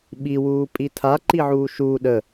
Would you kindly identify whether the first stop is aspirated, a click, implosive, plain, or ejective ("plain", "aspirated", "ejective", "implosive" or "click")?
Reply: implosive